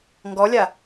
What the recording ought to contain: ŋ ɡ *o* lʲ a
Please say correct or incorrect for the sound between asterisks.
incorrect